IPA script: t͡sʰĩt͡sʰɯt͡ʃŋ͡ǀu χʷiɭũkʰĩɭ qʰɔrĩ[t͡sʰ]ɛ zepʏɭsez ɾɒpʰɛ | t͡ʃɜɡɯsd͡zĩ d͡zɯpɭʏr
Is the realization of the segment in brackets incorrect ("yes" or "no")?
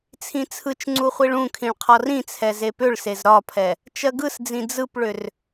no